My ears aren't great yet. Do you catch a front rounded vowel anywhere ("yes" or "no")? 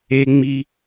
no